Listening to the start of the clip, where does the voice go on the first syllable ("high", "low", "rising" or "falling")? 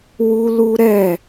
high